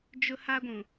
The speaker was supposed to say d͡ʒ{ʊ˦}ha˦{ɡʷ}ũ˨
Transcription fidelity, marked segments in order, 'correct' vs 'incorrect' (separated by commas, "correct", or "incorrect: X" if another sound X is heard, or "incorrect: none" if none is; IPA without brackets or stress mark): correct, correct